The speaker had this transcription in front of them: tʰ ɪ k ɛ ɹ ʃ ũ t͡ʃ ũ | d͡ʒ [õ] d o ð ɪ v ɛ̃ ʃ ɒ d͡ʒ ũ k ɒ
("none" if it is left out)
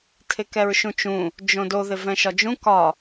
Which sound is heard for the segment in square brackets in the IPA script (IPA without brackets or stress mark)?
õ